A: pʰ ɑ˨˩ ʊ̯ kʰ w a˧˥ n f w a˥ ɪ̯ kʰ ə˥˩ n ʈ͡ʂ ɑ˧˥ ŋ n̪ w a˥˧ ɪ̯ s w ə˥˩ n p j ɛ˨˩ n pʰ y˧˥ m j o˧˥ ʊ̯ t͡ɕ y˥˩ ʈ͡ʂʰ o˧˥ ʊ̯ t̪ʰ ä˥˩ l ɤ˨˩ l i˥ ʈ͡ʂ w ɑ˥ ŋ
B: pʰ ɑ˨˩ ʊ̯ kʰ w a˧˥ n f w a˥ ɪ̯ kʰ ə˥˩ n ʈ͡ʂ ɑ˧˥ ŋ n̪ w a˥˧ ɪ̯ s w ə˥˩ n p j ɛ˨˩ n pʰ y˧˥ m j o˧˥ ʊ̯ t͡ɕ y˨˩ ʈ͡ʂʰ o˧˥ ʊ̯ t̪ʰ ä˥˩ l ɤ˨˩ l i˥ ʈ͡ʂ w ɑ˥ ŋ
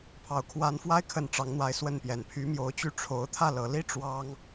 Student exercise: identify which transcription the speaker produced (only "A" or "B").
A